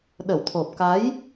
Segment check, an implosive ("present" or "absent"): present